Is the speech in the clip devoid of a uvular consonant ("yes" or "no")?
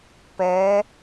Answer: yes